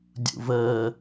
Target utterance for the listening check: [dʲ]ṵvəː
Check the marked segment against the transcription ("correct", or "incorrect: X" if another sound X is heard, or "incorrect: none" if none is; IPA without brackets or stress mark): correct